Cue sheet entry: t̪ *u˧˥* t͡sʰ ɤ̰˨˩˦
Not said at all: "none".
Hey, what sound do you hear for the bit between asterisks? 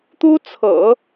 u˥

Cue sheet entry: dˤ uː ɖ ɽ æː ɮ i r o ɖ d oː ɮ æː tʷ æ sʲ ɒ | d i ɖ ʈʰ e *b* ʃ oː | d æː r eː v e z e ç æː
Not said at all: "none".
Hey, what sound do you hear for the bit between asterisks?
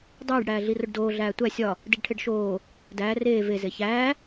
ɖ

